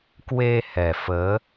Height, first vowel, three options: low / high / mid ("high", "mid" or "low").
mid